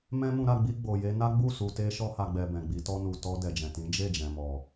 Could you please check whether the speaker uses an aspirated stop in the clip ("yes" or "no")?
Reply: no